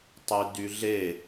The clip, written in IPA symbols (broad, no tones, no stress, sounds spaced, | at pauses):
tˤ y d y ɮ e